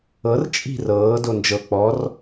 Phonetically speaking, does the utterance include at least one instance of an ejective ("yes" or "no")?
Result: yes